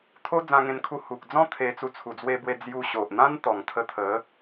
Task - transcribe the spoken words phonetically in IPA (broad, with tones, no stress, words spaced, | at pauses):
t̪ʰo˦d͡zã˧ŋẽ˧nkʰu˧ hu˨k̚d͡zɔ̃˦ t̪ʰe˧t͡su˧ t͡sʰu˨˩d͡zwe˧bwe˧ d͡zju˧ɕo˨ʔ n̪ã˦nt̪ɔ˨˩ŋt̪ʰə˧t̪ʰə˨˦